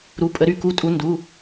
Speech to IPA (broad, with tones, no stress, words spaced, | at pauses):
ɾu˧˥˧ pʼə˧˥ɾy˧˥˧ ku˧˥˧tʼu˧˥ ndu˧˥˧